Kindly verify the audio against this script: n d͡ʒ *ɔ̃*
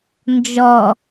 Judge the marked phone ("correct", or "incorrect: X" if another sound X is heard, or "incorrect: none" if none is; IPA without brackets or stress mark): incorrect: ɔ